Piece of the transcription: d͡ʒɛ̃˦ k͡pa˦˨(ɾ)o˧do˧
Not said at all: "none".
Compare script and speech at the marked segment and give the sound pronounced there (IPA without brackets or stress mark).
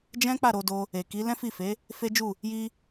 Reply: ɾ